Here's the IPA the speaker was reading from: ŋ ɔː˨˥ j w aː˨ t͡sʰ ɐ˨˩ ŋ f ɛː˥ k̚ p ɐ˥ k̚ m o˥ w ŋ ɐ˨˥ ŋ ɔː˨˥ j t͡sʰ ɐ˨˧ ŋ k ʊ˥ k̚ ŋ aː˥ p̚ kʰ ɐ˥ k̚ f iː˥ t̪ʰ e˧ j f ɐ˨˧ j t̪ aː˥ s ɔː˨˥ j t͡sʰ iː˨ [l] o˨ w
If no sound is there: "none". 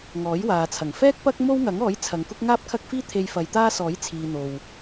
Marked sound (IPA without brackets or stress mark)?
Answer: n̪